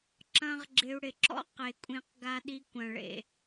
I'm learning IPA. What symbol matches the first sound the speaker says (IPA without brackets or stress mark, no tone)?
ǁ